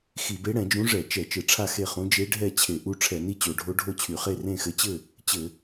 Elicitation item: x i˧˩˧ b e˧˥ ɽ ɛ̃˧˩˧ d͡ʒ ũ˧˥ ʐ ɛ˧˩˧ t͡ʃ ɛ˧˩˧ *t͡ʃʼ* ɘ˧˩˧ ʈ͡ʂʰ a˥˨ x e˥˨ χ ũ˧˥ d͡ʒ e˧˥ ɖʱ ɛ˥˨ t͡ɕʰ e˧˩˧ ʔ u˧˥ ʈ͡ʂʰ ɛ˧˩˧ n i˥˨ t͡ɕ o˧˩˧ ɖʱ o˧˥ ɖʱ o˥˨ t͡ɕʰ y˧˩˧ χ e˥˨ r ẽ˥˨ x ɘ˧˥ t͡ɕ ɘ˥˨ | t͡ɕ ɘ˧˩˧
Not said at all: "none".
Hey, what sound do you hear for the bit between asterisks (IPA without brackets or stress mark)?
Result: t͡ʃ